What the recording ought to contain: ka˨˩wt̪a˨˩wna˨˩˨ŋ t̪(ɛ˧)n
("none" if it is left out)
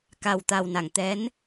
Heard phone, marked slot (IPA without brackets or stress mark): ɛ˧˥